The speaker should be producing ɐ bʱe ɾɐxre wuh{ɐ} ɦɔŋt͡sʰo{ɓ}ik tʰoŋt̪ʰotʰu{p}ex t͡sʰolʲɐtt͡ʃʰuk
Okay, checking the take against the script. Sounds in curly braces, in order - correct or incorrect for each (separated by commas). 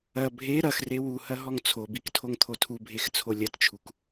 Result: correct, incorrect, incorrect